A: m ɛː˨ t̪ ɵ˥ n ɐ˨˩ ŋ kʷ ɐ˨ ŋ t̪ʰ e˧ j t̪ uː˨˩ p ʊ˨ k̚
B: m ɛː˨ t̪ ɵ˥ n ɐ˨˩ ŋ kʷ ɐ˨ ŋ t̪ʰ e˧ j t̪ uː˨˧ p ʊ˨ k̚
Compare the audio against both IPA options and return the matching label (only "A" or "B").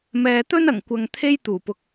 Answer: A